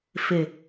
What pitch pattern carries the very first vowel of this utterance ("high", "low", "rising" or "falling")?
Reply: low